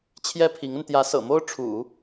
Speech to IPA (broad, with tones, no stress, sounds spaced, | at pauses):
t͡ɕʰ j ɛ˥ pʰ i˧˥ ŋ ə˧ n t̪ j ä˧˥ s ɤ̰˨˩ m o˥ ʊ̯ ʈ͡ʂʰ ṵ˨˩˦